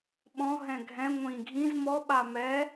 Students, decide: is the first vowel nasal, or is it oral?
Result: nasal